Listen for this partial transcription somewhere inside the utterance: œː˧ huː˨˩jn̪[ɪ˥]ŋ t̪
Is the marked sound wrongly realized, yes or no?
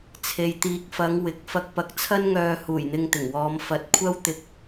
yes